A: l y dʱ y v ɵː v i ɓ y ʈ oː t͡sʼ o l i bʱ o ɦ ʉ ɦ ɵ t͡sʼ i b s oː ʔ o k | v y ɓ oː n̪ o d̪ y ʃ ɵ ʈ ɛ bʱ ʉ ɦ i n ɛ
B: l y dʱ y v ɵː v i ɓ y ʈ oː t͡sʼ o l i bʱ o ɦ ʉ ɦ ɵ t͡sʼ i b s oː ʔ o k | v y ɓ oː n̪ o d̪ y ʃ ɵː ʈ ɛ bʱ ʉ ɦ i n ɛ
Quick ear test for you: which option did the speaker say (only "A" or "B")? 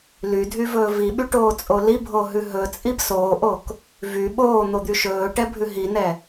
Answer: B